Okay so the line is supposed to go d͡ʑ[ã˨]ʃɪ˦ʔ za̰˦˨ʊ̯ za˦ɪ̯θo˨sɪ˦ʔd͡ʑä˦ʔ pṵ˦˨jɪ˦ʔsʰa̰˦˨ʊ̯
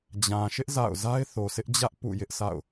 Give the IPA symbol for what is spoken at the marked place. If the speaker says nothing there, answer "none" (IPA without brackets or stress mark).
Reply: ã˨